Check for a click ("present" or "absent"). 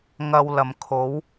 absent